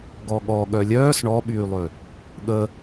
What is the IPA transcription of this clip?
ɡ ɔ ɠ ɔ ɠ œ lʲ œː s ɳ ɔ ɓ yː lˠ ø | ɠ ə

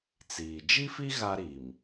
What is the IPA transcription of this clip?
t͡s iː˨ d͡ʒ i˦ f i˦ ɣ a˦ ɾ i˨ m

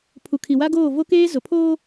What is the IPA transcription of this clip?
pʰ u˨ kʰ i˨ w a˦ ɡ oː˦˨ v o˦ k eː˦ z ʊ˨ pʰ oː˦

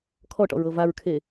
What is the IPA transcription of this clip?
kʰ ɔ ʈ ɔ̰ ɹ ɤ v a ɹ kʰ e

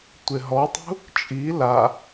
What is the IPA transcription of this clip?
tʷ e ɦ ɔ tˤ ṳ | t͡ʃʼ i l a

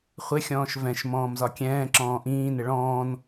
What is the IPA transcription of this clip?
χʷ ɪ xʲ ɔ̃ː ʃ v ɛ̃ ʃ m ɔ̃ː m z ɒ kʲ ɛ̃ː ǁ ɔ̃ː ʔ ĩː n ɪ ɭ ɔ̃ː n

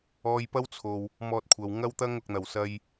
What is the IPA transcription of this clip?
ɔː˧ j p ɐ˥ w t͡sʰ o˨ w | m ɔː˧ t̚ kʷʰ ɐ˨ w ŋ ɐ˥ w t̪ ɐ˥ ŋ ʊ˨ k̚ n̪ ɐ˨˩ w s ɐ˧ j

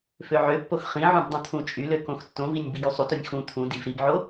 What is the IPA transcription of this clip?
f ø ʕ ø pː o x χ ĩ ʕ ũ b dˤ ũ t̪ʰ ũ t͡ʃʼ y l ø k õ x tː õ v i nʲ b i ɡ y sˤ u t o nʲ x ũ t̪ʰ ũ d i v ɾ i b ʕ o

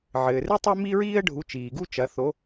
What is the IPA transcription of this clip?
ʕ ɘː˩ r ɨ˥ tˤ ɛ˥ m i˥ ɹ iː˥ ə̯ ɖʱ u˨˦ t͡ʃ iː˩ ɡ u˥ t͡ʃ ɐ˨˦ θ o˨˦

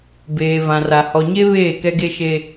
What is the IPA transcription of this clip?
b eː˨ v ã˨ r a˨ h ɔ˨ ɲ e˦ β eː˦˨ k ɛ˦ ɡ e˦ ʃ e˦

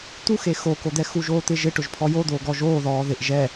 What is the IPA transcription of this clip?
t̪ u x e x o k o d̪ ɛ x u ʒ oː t̪ ɪ ʒ ɪ ʈ ʊ ʒ pʰ ɔ j o d̪ oː ɡ ɔ ʒ oː ð ɔː ð ɪ ʔ ʒ ɛ

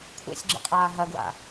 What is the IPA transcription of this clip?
kʷʰ ḛ sʲ ɡ͡ǁ ḭ qʼ aː ɦ ɐ ɡ w a̰

